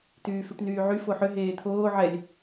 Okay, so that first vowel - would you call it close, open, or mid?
close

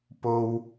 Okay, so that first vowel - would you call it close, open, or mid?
mid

